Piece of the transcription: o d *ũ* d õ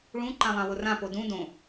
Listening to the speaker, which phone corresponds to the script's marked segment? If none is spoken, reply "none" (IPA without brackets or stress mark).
ũ